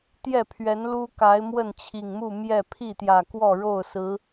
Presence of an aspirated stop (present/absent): present